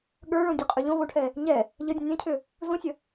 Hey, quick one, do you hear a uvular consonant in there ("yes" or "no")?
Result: yes